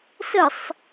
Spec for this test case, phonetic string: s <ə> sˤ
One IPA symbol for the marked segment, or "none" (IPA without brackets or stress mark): ə